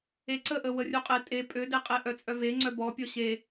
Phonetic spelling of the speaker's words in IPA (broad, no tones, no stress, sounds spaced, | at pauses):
e ǀ ə ʔ ə w ə rʲ u qʼ e tʼ e pʼ ø d e qʼ e ʔ œ t͡sʼ œ v e ŋ͡ǀ œ b ɔ pʲ ɔ ɕ e